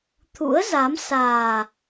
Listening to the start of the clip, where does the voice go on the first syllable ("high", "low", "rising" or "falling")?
rising